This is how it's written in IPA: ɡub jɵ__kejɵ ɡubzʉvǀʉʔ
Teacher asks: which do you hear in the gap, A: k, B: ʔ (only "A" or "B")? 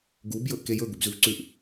B